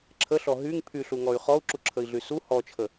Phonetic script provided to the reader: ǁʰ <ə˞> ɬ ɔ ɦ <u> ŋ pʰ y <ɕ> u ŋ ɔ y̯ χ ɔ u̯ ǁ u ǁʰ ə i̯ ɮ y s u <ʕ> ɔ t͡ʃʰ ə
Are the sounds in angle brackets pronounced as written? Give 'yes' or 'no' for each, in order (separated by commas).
no, no, no, no